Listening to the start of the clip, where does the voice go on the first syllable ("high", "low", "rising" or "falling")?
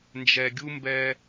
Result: low